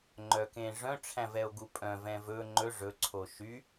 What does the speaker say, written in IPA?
ŋ͡ǃ œ k ẽ ʐ œ̃ ʈ͡ʂʰ æ̃ v ɛ o̯ ɡ u pʼ œ̃ v ɛ̃ v ɵ ŋ͡ǃ ɵ ʐ ɵ ǀʰ o ʃ y

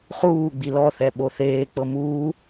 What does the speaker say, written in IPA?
χ uː ɡ͡b i l ɔ θ ɛ ɓ o θ eː k͡p ɤ m uː

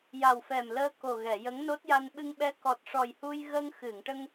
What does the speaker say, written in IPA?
j a˨˩ w f ɛ˨˩ m l əː˧ k o˨˩ ɣ ɛ˨˩˨ j ə˧˥ ŋ n o˦˥ t̚ j a˧ n ɓ ɨ˧ ŋ ɓ ɛ˧˥ k ɔ˨˩ t̚ ʂ ɔ˨˩ j h u˧ j ɣ ə˧ ŋ x ɨ˨˩˨ ŋ ʈ ə˧ ŋ

